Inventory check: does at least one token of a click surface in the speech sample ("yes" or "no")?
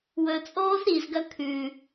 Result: no